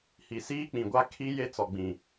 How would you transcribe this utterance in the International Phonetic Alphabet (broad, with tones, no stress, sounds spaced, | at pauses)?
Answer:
h i˨ s iː˦ k͡p ĩ˨ ɡʷ a˦ kʰ i˦ j e˦ t͡s ɔ˨ ɡ͡b ĩ˨